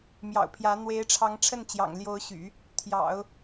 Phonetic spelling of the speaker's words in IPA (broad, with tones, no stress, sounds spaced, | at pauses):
m j ɑ̰˨˩ ʊ̯ pʰ j ä˧˥ n̪ w e˧˥ ɪ̯ ʈ͡ʂʰ ɑ˧˥ ŋ ʈ͡ʂʰ ə˥˩ n t͡ɕ j ɑ̰˨˩ ŋ l j o˧˥ ʊ̯ ɕ y̰˨˩˦ | t̪ʰ j ɑ̰˨˩˦ ʊ̯